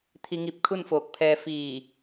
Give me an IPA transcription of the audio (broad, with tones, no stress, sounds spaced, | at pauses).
t̪ʰ i˧ ŋ i˧ p̚ kʰ u˥˨ n f oː˧˩ k̚ pʰ ɛː˧ f iː˧˩